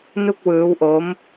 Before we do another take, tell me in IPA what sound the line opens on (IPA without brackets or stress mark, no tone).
n